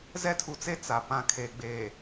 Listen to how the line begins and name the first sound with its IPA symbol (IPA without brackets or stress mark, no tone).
z